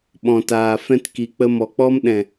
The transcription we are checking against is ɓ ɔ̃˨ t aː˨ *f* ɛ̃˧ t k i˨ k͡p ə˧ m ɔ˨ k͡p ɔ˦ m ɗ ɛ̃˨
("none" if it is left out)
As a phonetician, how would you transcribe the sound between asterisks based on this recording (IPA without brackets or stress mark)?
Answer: f